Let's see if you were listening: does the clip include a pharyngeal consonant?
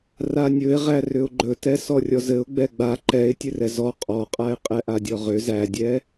no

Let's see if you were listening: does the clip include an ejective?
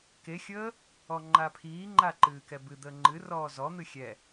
no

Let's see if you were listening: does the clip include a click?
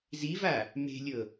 no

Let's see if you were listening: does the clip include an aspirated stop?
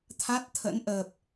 yes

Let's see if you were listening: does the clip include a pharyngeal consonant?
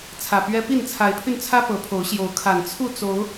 no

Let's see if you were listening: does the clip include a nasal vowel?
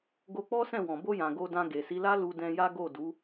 yes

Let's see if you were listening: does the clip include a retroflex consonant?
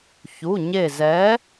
no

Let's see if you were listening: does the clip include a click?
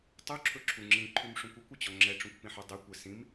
yes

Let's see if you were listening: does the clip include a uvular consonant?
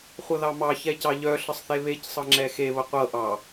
yes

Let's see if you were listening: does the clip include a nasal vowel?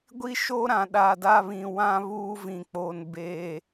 yes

